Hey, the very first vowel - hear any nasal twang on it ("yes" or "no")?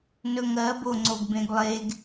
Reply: no